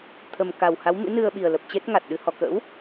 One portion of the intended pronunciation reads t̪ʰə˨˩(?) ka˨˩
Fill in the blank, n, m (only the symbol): m